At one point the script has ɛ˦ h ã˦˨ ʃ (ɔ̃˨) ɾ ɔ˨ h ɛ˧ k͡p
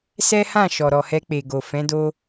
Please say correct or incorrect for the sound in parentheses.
incorrect